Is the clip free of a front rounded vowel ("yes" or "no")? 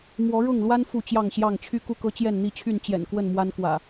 no